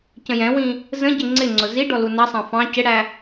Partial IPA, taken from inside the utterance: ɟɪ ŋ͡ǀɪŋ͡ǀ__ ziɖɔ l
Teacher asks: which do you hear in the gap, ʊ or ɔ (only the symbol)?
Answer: ʊ